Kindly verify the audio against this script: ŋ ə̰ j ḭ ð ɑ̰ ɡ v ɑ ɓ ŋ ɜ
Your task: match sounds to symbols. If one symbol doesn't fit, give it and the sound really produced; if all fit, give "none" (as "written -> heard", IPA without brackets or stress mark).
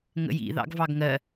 ɓ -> ɡ